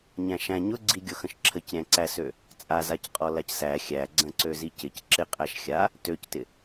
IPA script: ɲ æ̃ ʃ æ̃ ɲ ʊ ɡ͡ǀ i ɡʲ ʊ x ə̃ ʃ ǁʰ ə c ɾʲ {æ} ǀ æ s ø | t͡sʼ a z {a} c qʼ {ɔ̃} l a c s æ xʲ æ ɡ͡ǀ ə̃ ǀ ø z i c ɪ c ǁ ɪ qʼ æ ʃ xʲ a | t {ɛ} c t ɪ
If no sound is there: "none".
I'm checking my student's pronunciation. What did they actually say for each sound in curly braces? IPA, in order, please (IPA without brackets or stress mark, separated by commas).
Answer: æ̃, a, ɔ, ø